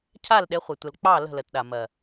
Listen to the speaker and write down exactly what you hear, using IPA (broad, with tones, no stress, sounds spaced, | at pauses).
cʰ a˦˨ l ɗ e˨˦ χʷ e˨ tʷ ə˨ l k͡p ɑ˦˨ l ə̤˦˨ l ə˨ t ɗ a˨ m ɜ˨